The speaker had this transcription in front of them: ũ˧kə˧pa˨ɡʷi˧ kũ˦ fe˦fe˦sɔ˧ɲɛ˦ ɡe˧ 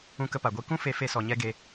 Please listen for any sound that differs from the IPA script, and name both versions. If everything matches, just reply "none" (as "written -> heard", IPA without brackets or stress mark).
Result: none